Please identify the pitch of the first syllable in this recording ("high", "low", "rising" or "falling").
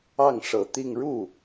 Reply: falling